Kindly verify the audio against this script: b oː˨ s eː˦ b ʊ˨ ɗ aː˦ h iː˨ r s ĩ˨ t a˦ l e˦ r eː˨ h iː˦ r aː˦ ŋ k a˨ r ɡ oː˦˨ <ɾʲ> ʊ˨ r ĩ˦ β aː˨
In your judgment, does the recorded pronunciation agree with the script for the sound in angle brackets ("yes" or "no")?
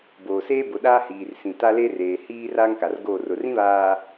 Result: no